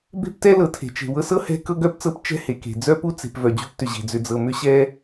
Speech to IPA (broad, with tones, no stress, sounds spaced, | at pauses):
b e̤˥ p t ɛ˥ l ɤ˨ tʰ e̤˩ t͡ʃ e̤˩ w ɤ˦ s ɤ˥ h ɛ̤˥ k ɤ˥ ɡ œ˥ p t͡s ɤ˦ p t͡ʃ ɛ̤˥ h e˩ k e̤˩ d͡z œ˥ p u˥ t͡s e̤˨ p v œ˩ d͡ʑ u˦ p t ʏ˨ ʑ e̤˩ d͡z ʏ˨ d͡z ɤ˨ m ʏ˥ ɕ ɛ˥